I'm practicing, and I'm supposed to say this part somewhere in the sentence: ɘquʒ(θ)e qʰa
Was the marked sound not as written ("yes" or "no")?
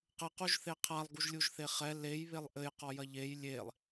no